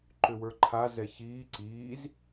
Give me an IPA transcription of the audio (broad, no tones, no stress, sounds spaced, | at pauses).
ǃ ʏ w ə˞ ǃʰ a z ɛ ç iː ǀ iː z